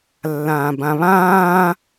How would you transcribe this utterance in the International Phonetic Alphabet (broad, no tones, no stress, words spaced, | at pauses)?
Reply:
lːãːbãβãː